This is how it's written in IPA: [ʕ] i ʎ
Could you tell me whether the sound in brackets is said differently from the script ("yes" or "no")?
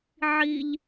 no